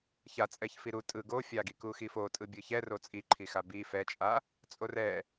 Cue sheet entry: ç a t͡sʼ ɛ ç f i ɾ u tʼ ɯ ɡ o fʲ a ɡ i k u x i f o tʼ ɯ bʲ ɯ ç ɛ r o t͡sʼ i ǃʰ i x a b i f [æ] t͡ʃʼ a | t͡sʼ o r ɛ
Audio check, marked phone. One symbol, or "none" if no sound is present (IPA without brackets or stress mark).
ɛ